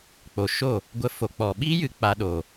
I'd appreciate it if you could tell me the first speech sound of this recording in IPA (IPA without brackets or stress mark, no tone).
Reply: k͡p